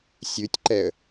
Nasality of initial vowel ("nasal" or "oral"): oral